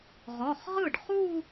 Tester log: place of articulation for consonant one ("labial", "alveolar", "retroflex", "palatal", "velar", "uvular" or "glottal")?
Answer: uvular